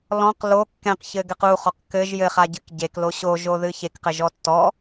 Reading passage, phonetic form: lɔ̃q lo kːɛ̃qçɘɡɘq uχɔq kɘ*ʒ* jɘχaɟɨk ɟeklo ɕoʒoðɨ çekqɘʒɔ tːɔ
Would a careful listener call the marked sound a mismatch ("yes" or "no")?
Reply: no